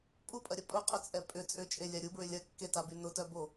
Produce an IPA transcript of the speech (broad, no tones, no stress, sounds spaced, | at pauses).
pʼ u pʼ ɐ ɾʲ ɐ pʼ ʊ qʼ ʏ t͡sʼ ɛ pʼ ʏ t͡sʼ ʏ t͡ʃʼ e lʲ a ɾʲ u b ɹ ʏ lʲ ɐ kː e t a b y n ʊ t œ b o